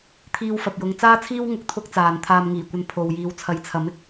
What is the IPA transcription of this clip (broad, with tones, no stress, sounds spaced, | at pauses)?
t̪ʰ iː˧ w f ɐ˨ p̚ j ʊ˧ ŋ t͡s aː˥ t͡sʰ iː˥ w ŋ ʊ˧ k̚ t̪ʰ ʊ˥ k̚ t͡s aː˨ n t̪ʰ aː˧ m ŋ iː˨˩ kʷ ɐ˧ n pʰ o˨ w j iː˨˧ w t͡sʰ ɐ˨˧ j t͡sʰ ɐ˨˥ m ɪ˧ k̚